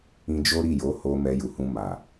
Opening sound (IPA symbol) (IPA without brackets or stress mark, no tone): ĩ